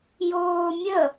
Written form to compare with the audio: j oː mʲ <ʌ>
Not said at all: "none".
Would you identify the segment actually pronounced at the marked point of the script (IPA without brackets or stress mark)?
ə